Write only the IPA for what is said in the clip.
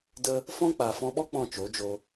də˦ | fɔ̃˦k͡pa˨ fɔ̃˧ɓɔ˦ k͡pɔ̃˦˨t͡ʃo˨˦d͡ʒo˧

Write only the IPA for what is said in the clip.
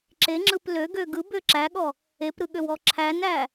ǁeŋ͡ǁɯp løɡø ɡɯbø ǁæɠɔ | epɾɯɠøwɔ ǁʰænæ

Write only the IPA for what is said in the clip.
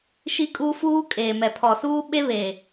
ʃi˦kʼuː˦ fuː˦kʼeː˨mɛ˨ pʰɔ˨suː˦ɓe˦ βe˨

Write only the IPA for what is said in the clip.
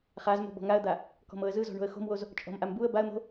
χazmo̤ bɔ̤ŋaə̯d̪a | kɔ̤mɤə̯zɯzo̤ ɳo̤ə̯xo̤mwoz | t͡ʃʼɔ̤mʔam buə̯ baə̯mo̤

